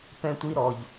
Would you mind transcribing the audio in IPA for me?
pɛ̃˧tʷi˧ɾɔ˨˩ʎ

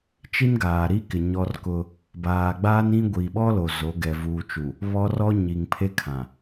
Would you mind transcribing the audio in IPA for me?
t͡ʃi˦nɡaː˨ɾi˦kɪ˨ ɲɔ˦rkʊ˦ | baː˨ɡ͡baː˦n ĩ˦ ɡʷi˨ɓɔ˦lo˨ zo˨˦ɡɛ˨ vuː˨t͡ʃu˨ | βɔ˦rɔ˦ ɲi˨ŋpʰe˦kʰã˨

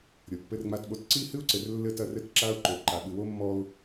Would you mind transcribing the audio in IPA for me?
ɾʲo˨pːɘ˦rŋ͡ma˦tɓo˦t ǀi˦hɨ˦ʊ̯ǀɘ˨r lːɘ˦˨tɐ˦rɘ˦t ǁa˦ʊ̯ǃo˨ ǃa˨ ɓɨ˨wo˦mːɔ˦ʊ̯

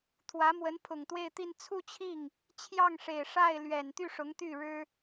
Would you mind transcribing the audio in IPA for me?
t̪ʰwä˧˥mwə˧˥npʰʊ˨˩ŋ t̪we˥˧ɪ̯t̪i˥˧n t͡sʰu˥˧t͡ɕʰi˥˩ŋ | t͡ɕʰjɑ˥˩ŋʂe˨˩ɪ̯ʂa˥˩ɪ̯ lɥɛ˨˩nt̪y˥˩ ʂʊ˧˥ŋt̪y˥˩ɻɻ̩˥

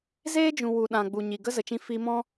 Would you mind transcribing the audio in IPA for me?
zeː˦d͡ʒũ˨ wu˨ɗã˨ ɡ͡bu˨ɲi˨ ɡə˦zə˨t͡ʃĩ˧ fi˧mɔ̃˦

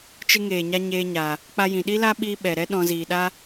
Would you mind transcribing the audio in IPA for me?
t͡ʃɨ˧ŋeː˨ɲa˧ ɲeː˧ɲa˨ | k͡pa˧jĩ˨ɗi˦la˦ ɓiː˧ɓɛ˨ ɾɛ˦ ɗɔ̃˧ziː˨ɗa˦

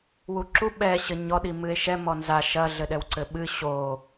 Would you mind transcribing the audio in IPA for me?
wuǁu ɓɛ ɕɘɲɔɗi mɨe̯ʃɛ mɔnza ʃɐɮɘɗɛw ǀɘɓɨ ɕo

